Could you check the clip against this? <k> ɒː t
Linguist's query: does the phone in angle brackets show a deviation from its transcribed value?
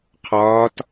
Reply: yes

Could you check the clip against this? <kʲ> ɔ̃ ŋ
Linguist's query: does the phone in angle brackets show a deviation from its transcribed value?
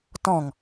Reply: yes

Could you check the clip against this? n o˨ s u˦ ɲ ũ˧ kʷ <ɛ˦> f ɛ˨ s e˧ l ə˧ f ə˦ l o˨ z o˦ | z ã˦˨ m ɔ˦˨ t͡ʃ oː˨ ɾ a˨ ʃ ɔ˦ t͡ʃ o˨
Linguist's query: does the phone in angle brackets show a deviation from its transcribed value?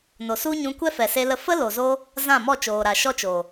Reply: no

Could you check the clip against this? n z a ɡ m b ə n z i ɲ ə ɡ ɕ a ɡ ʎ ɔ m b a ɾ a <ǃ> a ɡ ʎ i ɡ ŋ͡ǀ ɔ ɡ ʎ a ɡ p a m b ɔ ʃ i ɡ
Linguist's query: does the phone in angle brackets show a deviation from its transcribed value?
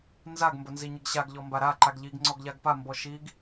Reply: no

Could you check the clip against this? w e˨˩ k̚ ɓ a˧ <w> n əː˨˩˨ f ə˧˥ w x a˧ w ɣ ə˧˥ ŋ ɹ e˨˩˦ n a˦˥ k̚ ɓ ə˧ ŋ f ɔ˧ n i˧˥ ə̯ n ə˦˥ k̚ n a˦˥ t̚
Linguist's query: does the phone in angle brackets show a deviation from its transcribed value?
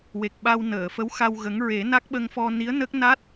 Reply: no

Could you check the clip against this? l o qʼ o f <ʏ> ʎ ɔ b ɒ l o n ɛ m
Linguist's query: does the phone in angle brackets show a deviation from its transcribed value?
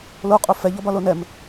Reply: yes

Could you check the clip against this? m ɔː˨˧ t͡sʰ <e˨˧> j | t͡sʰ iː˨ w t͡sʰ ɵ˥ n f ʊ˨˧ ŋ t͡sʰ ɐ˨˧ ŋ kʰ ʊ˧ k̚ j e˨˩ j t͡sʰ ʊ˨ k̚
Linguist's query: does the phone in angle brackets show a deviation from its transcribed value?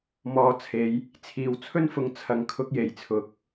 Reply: no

